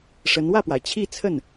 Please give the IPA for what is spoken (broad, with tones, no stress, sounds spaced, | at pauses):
ʂ ə˧˥ n w ä˥˩ p w a˩ ɪ̯ t͡ɕʰ i˥˧ t͡sʰ ə˥˩ n